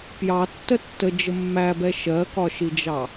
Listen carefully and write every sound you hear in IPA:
p j ɑ tː ə tː ə d͡ʒ ə mː æ b ɛ ʃ ɜ k ɒ ʃ i d͡ʒ ɑ

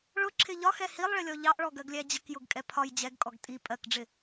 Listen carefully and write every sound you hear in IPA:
ɭ ʊ ǁʰ ɪ ʎ ɒ x ɛ h i lˠ ɭ ɪ lʲ ɔ ʎ ɑ ʔ ɭ ɔ ɡ ɜ ɡ lʲ æ d͡ʑ ə k j ʊ ɡ kʼ ɛ pʰ ɒ j d͡ʑ ɛ ɡ kʼ ɔ ɡ tʼ i pʼ ɜ k ɖ͡ʐ ɪ

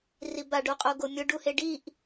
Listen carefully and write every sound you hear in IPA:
r i b a ɖ o qʼ o ɡ o mʲ ʊ ɖ u h e ɖ i ʔ

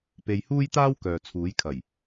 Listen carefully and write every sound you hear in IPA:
p e˧ j h uː˥ j t̪ aː˥ w k œː˨ t͡sʰ uː˨˥ j kʰ ɐ˨˩ j

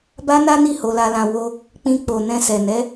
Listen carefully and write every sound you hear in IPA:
b a˦ n a˦ n i˦˨ h o˧ l a˧ l ã˧ w o˧ | k͡p ĩ˧ k͡p o˨ n ɛ̃˧ s ɛ˨ n ɛ˨˦

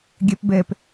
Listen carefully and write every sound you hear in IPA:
ɡʲ ɛ p b ɛ p

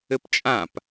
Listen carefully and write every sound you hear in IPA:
ɘ p t͡ʃʼ ã p

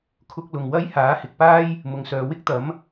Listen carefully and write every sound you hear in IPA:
kʰ ʊ˥ k̚ l ʊ˨ ŋ w ɐ˥ j h aː˨˥ h ɪ˨ k̚ p aː˥ j | m ʊ˨ ŋ s œː˨˧ w ɪ˥ k̚ t̪ ɐ˨˥ m

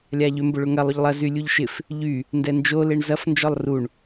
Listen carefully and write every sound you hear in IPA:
lʲ a ʎ ʏ m b ʊ ɭ ʊ ŋ ɐ lˠ ʊ ʎ lˠ ɐ z y lʲ u ʎ ʃ ɪ f | ʎ y | n d ɛ n d͡ʒ o l e ɳ z ɐ f n d͡ʒ ɔ lˠ r u ɳ

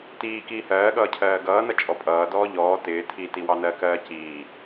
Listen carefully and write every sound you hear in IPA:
t iː k iː h ɜː ɠ ʌː cʰ ɜː ɡ ʌː n ʌ t͡ʃʼ ɔ pʼ ʌː d ɔː ʎ ɔː t ɪː tʰ i t i w ɑ n ɜ k ɜː c iː

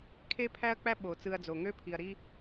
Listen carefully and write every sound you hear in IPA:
kʰ e˥ pʰ æ˥ ɐ̯ k͡p æ˥ ɓ o˩ t͡s ɯ˧ ɐ̯ d͡z o˩ ŋ ø˥ pʰ i˩ ɐ̯ ɾ i˥

